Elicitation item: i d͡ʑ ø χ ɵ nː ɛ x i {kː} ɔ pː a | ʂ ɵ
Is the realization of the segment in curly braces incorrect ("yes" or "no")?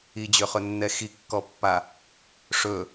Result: no